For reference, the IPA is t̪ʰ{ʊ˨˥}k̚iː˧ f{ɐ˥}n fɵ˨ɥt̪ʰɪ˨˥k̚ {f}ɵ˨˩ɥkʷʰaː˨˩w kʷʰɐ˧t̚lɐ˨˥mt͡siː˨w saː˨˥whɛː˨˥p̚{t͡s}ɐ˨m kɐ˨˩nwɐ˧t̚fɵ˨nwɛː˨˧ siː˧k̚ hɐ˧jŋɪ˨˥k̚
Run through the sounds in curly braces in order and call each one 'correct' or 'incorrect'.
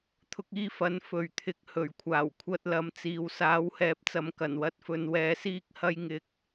incorrect, incorrect, incorrect, correct

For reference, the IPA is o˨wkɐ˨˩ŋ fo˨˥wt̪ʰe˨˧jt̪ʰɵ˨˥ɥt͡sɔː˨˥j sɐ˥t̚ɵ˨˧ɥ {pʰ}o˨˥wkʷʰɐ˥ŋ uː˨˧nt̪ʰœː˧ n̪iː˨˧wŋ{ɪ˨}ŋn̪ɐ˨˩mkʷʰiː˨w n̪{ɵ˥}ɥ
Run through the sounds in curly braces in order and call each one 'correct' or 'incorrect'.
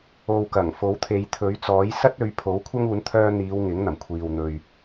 correct, incorrect, incorrect

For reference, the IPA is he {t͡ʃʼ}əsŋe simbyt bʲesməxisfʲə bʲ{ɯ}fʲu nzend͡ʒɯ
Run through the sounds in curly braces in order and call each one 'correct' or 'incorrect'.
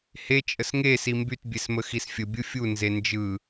correct, correct

